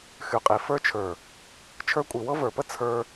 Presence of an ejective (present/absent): present